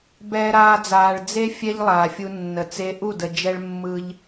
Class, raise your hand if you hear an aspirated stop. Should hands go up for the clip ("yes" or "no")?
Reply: no